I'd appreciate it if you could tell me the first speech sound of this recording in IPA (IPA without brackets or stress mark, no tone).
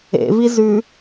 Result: ḛ